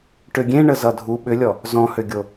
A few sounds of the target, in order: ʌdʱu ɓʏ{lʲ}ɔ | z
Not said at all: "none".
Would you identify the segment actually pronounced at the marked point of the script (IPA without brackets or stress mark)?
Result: lʲ